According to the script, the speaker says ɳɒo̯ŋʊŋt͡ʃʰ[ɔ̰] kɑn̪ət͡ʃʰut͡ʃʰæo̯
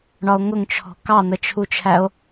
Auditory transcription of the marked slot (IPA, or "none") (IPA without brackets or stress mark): ɔ̤